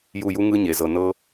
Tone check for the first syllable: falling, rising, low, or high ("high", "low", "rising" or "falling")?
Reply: falling